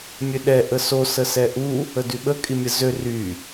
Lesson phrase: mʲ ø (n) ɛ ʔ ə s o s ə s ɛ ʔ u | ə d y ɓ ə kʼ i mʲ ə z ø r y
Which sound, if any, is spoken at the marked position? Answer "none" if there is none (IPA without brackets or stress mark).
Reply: ɗ